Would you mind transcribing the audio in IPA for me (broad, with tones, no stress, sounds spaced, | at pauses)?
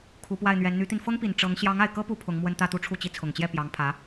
kʰ u˧˥ p w a˥˩ ɪ̯ n̪ ɥ ɛ˧˥ n n̪ y˧˥ t̪ i˧ n f ɤ˥ ŋ p i˨˩ n ʈ͡ʂ ɤ˧˥ ŋ ɕ j ɑ˧˥ ŋ a˨˩ ɪ̯ k ɤ˥ p u˧˥ pʰ ʊ˧˥ ŋ m w ə˥ n t̪ ä˥˧ t̪ u˥˧ ʈ͡ʂʰ u˥˩ t͡ɕ i˥ t͡sʰ ʊ˨˩ ŋ t͡ɕ j ɛ˥˩ p j ɑ˧˥ ŋ pʰ ä˧˥